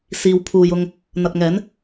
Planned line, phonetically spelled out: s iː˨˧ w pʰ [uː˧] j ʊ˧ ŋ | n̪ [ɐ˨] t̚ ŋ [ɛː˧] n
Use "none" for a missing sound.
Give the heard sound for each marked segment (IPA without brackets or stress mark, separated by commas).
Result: uː˨, ɐ˨, ɛː˨˥